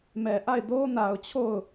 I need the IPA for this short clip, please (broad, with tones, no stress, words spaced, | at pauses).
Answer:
mɛ˨ʔa˦˨ɪ̯ do˦na˨ʊ̯ t͡ɕʰo˦˨ʊ̯